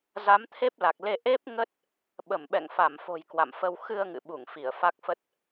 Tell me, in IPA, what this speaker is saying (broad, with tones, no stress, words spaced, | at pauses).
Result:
za˨˦mt̪ʰe˦˥p̚la˨˩k̚le˧ ʔe˦˥p̚ ŋə˦˥t̚ | ɓə˧˩mɓɛ̰˧˨ŋfa˧˩mfo̤˨˩j kwa̰˧˨mfə˧w xɨ˧ə̯ŋɨ̰˧˨ɓu˧˩ŋ fi˧˩ə̯fa˦˥k̚fə˦˥t̚